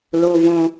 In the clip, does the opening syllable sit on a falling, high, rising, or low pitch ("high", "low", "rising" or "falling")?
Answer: high